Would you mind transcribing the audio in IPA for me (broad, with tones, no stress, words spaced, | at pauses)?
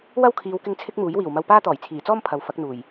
wɐ˥wkʰiː˨˧wkɪ˧ŋ t͡sʰɪ˥k̚ muː˨˥jwiː˨˩wmɐ˧wpaː˥ t̪ɔː˨˩jt͡sʰiː˨˩t͡sɔː˥m pʰɐ˨wfɐ˨˥k̚n̪uː˨˩j